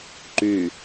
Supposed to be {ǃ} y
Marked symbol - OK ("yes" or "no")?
yes